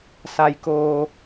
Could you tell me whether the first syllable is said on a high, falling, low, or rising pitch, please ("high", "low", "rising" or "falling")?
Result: low